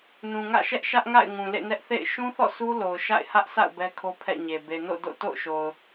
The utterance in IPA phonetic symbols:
n ũ˨ ŋ ä̰˦˨ ʃ ɛ˦ ʔ ʃ ä˦ ʔ ŋ a̰˦˨ ɪ̯ ŋ ũ˨ l ḛ˦˨ n ɛ˦ ʔ θ ḛ˦˨ ɪ̯ ʃ ũ˦ θ ɔ̰˦˨ s u˦ l o˨ ʊ̯ ʃ a̰˦˨ ɪ̯ h ä˦ ʔ sʰ a̰˦˨ ʊ̯ b ɛ˦ kʰ o˦ pʰ ɛ̰˦˨ ɲ e˨ b e˨ n o̰˦˨ d o̰˦˨ t o̰˦˨ ʊ̯ ʃ o˨ ʊ̯

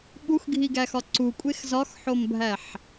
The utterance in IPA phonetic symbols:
ɓ u x ɡʱ i ɡ æ x ɒ ǀ u kʷʼ e x z ɒ x ħ o m bʱ æ ħ

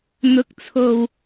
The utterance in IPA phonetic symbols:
n̪ ʊ˨˥ k̚ t͡sʰ o˨ w

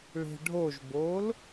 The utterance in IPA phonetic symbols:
ɭ e̤ ɖʱ o ʒ b o l

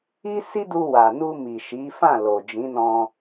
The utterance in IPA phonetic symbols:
i˦ s i˦ d u˧ w a˨ n u˧ m i˨ ʃ i˨˦ f ã˦˨ l o˨ d͡ʒ ĩ˨˦ n ɔ̃˧

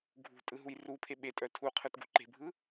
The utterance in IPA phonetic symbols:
ɡʱ ṳ tʼ ɯ ɦ u j r u pʰ e ɓ e tʼ œ tʰ u qʰ ɯ t ɡ ṳ ǃ e̤ bʱ ɯ

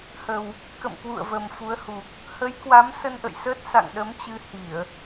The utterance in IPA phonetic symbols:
h ə˨˩ w | k ə̰˧˨ m k w ṵ˧˨ ə̯ v ə˨˩ m f u˨˦ ə̯ h u˨˩ k̚ | h ə˨˦ j k w a˨˦ m s ə˧ n ʔ ə̰˧˨ j s əː˦˥ t̚ s a̰˧˨ ŋ ɗ ə˨˦ m t͡ɕ ɨ˧ h i˧˩˨ ə̯

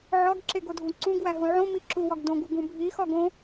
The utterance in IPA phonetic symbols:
ʕ ɒ ɡ ǁ e ɡ o dʱ ũ ǀ ũ ɡ w æ ɦ ũ ʕ õ m i ǁ u w ɒ ɡ d õ ɡ u ɡ ũ bʱ i x ɒ ɡ õ

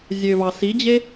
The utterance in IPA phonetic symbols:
zʲ ø v ɑ s i d͡ʑ e

